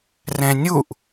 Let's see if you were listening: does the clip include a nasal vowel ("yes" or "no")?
yes